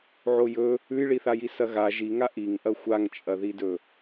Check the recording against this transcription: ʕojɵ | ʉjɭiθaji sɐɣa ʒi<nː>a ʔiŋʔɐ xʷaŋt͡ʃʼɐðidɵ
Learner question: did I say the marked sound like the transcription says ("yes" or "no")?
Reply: no